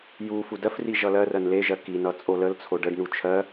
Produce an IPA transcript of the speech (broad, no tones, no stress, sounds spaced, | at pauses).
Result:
j u f u d ɜ f r i ʒ ʌ l ɜ r ɜ n l e ʒ ɜ k i n ʌ t͡sʼ o l ə l t͡sʰ o ɖ ə ɖ n u t͡ʃʰ ɜ